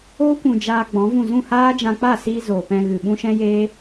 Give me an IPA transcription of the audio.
oː˦ kʷ ũ˨ d͡ʒ aː˧ ɡ͡b ɔ̃˨˦ v ũ˦˨ z ũ˦˨ h aː˦ d͡ʒ ã˧ k͡p a˦˨ s iː˧ z oː˨ p ɛ̃˧ ɣ ɨ˨ ɓ ũ˦ ʃ ɛ̃˦ j eː˦

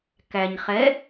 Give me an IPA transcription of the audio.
k æ ɲ χ ɛ

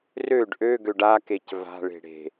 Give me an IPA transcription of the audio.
r ø ɖ ʔ ø ɡ ø ɖ a k e c v a̤ ɭ e̤ ɽ e̤

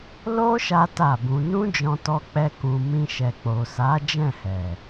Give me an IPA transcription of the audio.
l o˦ ʃ a˦ t a˦˨ b ũ˧ n ũ˦ d͡ʒ ɔ̃˧ t ɔ˧ k͡p ɛ˧ k ũ˨ m ĩ˧ ʃ ɛ˨ k͡p o˨ s a˨˦ d͡ʒ ɛ̃˦˨ h ɛ˨

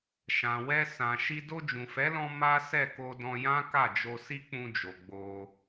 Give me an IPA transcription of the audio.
ʃ ã˨ w ɛ˧ s ã˨ ʃ i˧ d o˧ d͡ʒ ũ˨ f ɛ˨˦ l ɔ̃˧ m a˦ s ɛ˦˨ k o˧ d ɔ̃˧ j ã˦ k a˦˨ d͡ʒ o˧ s i˦ k͡p ũ˧ d͡ʒ o˨ ɡ͡b o˧

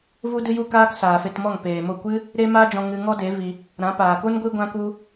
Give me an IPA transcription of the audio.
v u˦ d ɨ˦ j u˦ k aː˦ k s aː˨ f e˧ t m ɔ˦˨ ŋ p eː˨ m o˦˨ kʷ ɨ˦ | ɾ e˦ m aː˦ d͡ʒ ɔ̃˧ ŋ ɨ˧ ŋ ɔ˦ d e˨˦ v i˧ | ɾ ã˨˦ p aː˨ k o˦ n ɡʷ i˦ ɡʷ ã˦ k u˦

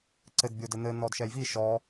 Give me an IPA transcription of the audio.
ǀ ɘ d bʲ o d ɘ n̪ ɘ n̪ ɔ d ʃ ɛ j v i ʃ ɔ

